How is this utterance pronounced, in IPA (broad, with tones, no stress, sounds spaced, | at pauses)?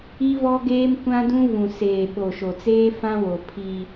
i˦ v ɔ˦ ɡ eː˦ m kʷ ã˦ d ũ˦ v ũ˨ s eː˨ ɓ o˨ ʃ o˨ t͡s eː˦ f ã˦ w o˨ pʰ i˦